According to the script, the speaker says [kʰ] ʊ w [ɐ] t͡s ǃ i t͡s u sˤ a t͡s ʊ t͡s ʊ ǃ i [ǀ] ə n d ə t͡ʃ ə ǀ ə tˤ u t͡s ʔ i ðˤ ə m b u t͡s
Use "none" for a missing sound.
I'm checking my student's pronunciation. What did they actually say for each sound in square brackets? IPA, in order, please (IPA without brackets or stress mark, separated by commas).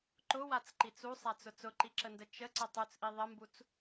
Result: ǃ, a, ǁ